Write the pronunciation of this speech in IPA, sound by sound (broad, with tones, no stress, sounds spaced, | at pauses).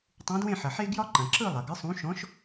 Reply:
tˤ ũ˨˥ d w ẽ˥˨ ħ ɐ˩ ħ e˥ ɡ j ɒ˥ ǃ ɐ̃˩ ǁ ɯ˥˨ lˠ ɐ˩ ɡ ɨ˨˥ sˤ ũ˨˥ ʃ ɔ̃˨˥ ʃ